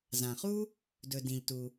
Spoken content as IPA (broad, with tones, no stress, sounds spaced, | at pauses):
z ã˩ χ u˥ | d ɵ˩ d ĩ˩ ʎ t u˩